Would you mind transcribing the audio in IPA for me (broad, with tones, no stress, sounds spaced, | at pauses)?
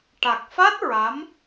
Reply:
ʈ a˨˩ k̚ f a˦˥ t̚ ɹ a˧˥ m